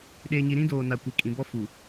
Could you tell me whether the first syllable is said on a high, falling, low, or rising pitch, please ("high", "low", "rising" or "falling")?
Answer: low